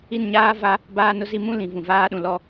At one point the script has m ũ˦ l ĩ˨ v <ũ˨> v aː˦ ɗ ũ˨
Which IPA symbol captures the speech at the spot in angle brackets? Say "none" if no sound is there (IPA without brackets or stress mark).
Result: ũ˨